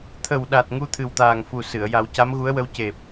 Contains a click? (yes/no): no